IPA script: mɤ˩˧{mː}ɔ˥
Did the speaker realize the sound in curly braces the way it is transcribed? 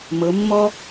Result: yes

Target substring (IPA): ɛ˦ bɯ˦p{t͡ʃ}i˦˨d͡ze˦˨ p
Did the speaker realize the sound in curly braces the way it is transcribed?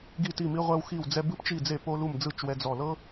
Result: yes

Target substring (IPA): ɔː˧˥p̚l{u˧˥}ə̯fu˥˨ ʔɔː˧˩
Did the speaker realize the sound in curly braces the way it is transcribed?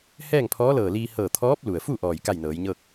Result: no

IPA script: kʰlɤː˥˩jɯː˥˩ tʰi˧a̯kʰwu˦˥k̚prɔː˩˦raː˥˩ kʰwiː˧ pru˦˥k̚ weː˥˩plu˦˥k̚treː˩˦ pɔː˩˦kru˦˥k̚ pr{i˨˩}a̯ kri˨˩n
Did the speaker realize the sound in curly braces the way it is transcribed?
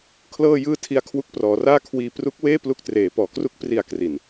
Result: yes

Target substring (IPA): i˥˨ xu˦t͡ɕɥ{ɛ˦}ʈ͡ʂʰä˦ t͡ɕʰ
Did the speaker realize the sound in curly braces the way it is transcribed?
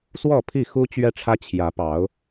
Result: yes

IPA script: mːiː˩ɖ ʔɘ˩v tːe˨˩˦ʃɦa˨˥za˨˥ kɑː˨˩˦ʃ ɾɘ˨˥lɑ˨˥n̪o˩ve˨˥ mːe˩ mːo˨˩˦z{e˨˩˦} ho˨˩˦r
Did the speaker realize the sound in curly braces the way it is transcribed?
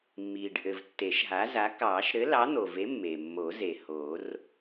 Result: no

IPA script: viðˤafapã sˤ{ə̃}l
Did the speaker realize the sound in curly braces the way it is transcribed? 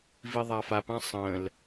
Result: yes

